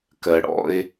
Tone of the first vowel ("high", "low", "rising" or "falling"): low